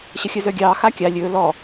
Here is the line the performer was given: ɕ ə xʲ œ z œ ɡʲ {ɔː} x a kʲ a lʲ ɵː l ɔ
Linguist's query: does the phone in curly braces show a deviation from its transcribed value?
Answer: yes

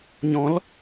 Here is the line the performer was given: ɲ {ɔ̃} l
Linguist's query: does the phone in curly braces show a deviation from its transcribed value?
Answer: no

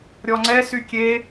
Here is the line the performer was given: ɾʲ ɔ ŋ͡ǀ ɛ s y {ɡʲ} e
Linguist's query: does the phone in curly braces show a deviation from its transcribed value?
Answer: yes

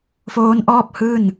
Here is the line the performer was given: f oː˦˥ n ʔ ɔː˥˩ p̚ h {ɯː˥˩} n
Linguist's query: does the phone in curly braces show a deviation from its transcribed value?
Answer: no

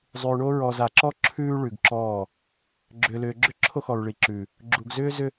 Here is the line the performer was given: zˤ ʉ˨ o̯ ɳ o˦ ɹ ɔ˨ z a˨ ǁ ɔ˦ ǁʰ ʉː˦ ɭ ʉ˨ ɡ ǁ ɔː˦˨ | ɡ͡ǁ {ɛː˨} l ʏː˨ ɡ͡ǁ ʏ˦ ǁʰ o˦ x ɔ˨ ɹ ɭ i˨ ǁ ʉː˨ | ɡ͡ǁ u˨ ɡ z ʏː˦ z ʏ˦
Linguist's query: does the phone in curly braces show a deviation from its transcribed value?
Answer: yes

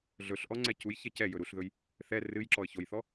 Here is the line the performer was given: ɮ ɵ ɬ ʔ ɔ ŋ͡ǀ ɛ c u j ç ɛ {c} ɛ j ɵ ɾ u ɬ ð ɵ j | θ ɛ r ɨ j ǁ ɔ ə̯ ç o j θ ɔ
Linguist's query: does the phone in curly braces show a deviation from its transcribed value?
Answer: no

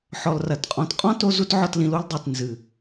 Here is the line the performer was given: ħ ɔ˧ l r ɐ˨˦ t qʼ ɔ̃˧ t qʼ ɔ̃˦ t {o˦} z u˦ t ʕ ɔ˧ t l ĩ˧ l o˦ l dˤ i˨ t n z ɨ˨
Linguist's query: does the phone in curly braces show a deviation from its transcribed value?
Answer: yes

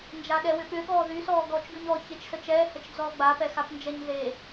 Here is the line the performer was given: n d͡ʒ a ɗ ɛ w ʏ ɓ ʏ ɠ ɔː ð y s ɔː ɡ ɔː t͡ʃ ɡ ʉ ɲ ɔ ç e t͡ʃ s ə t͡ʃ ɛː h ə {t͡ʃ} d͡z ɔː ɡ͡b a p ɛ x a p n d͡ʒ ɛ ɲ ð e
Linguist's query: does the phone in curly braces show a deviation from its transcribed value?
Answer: no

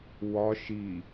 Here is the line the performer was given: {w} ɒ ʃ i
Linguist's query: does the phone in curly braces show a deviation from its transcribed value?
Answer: no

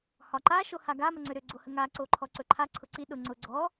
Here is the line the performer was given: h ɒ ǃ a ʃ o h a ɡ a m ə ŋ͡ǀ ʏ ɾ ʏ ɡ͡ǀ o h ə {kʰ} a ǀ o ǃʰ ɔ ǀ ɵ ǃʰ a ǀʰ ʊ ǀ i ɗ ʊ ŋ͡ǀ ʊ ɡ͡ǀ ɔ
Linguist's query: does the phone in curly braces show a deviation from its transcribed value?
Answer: yes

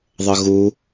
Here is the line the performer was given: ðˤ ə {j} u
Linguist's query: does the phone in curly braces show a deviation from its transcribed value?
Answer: yes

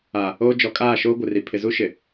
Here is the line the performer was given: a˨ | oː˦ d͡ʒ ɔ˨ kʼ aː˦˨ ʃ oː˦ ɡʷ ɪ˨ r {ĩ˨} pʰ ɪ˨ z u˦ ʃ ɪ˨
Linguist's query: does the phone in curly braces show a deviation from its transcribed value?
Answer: yes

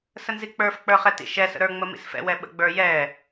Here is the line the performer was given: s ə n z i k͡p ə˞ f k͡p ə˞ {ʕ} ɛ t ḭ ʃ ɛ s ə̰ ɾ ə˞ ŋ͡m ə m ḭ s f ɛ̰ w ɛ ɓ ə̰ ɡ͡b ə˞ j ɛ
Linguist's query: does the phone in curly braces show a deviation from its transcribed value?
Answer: yes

